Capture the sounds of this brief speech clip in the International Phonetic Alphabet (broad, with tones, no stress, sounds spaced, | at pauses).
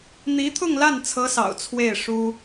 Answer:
n̪ i˧˥ t̪ʰ ʊ˥˧ ŋ l a˥˩ n t͡sʰ ɤ˧˥ s ɑ̰˨˩ ʊ̯ t͡sʰ w e˥˩ ɪ̯ ʂ u˥